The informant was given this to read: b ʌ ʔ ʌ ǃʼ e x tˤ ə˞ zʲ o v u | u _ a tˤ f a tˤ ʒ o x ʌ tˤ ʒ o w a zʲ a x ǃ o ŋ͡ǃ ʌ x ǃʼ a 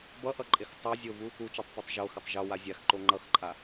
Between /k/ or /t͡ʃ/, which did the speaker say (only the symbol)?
t͡ʃ